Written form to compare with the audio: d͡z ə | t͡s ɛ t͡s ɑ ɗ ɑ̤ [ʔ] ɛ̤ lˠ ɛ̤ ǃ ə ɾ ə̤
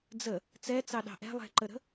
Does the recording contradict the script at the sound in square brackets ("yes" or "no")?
no